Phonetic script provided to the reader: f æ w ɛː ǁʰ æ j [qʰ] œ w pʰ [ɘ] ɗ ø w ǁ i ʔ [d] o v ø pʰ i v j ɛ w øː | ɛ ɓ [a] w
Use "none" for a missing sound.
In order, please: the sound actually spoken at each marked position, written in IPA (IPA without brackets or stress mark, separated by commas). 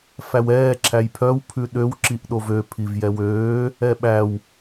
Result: pʰ, ʉ, ɗ, æ